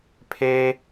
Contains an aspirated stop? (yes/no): yes